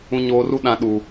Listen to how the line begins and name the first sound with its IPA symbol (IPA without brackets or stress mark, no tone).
ũ